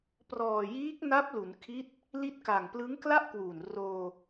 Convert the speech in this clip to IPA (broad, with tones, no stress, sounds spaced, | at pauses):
p r ɔː˨˩ j iː˦˥ k̚ n a˦˥ p̚ l u˩˦ n kʰ i˦˥ t̚ | l i˦˥ t̚ k a˨˩ ŋ p l ɯ˦˥ ŋ k l a˥˩ ʔ k w uː˨˩ n r oː˧